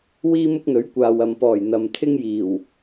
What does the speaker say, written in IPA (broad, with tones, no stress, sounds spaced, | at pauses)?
w iː˥ m ʊ˥ k̚ n̪ ɵ˨˥ ɥ kʷ aː˨ w ɐ˨ m p ɔː˨˩ j n̪ ɐ˨ m t̪ʰ ɪ˥ ŋ j iː˨˩ w